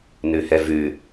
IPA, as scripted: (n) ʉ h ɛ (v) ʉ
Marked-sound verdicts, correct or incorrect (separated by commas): correct, correct